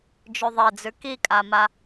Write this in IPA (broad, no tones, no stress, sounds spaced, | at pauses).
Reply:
d͡ʒ ʉ ðˤ e d͡z ʉ k i kʼ a m a